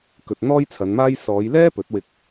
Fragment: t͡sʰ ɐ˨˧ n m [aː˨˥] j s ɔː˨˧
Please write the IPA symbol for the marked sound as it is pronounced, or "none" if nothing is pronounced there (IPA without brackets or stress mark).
aː˥